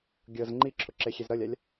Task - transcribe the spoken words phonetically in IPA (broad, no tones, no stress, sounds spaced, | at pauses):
ɡʲ ɤ z ŋ͡ǃ i ǁʰ ʊ ǁ e xʲ e z ɾ ʌ lʲ a lʲ